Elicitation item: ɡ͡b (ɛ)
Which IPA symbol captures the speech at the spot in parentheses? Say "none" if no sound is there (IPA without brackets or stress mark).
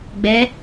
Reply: ɛ